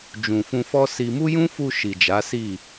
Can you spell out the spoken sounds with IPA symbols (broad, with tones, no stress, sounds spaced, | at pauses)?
d͡ʒ ũ˨ f ũ˧ f ɔ˦ s i˧ m u˦ j ũ˦ f u˧ ʃ i˨ d͡ʒ a˨˦ s i˦˨